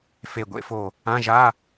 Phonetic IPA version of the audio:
f e˧˩ ɡʷ ḛ˥˧ f o˧˩ | ã˧˥˧ ʒ a˧˥˧

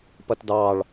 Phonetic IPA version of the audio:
p ʌ t d ɑ ɭ

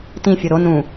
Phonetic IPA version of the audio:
t ĩ fʲ u ɾ o n ũ

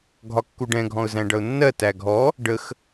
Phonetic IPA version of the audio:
ɡʱ ɒ kː u ɖ ɛ̃ ɡʱ ɔ̃ ʊ̯ z æ̃ ɖ ʌ ʊ̯ nː ɜ t æ ɡʱ ɔ | ɖ ə x

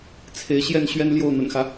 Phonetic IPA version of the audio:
t͡sʰ e˨˦ ɪ̯ ɕ j ɛ˥˨ n ɕ ɥ ɛ˦ n l j o˥˨ ʊ̯ n̪ ə̰˨˩ n x ä˦

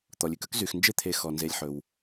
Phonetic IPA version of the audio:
t̪ ɔ˩ lʲ ʉ˨ k œ˥ k z y˩ x n d͡ʒ e˥ t̪ʰ e˨ x ɔ˩ n z e˨ lʲ ħ ɵ˩ w

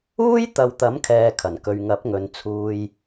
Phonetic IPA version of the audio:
uː˥ j t̪ ɐ˨ w t̪ ɐ˨˥ m kʰ ɛː˨ kʰ ɐ˨˩ n k ɵ˨ ɥ ŋ ɐ˨˥ p̚ ŋ ɵ˨˧ n t͡sʰ uː˧ j

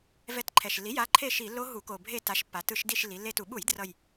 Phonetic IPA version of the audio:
v ɛ˦˨ t ǃʰ ɛ˨˩ ʃ lː i˩˥ j a˩˥ ǃʰ e˦˨ ʃ i˧˩˧ lː o˦˥ ɦ u˧˩˧ k o˨˩ bʱ e˦˨ t a˩˥ ʃ pː a˩˧ t ɯ˧˩˧ ʃ d i˦˨ ʃ lː i˩˧ lː e˦˨ t u˧˩˧ ɓ u˧˩˧ j d r ʌ˨˩ j

